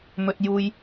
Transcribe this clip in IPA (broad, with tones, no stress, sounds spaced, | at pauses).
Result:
m ɵ˧ t̚ j uː˧ j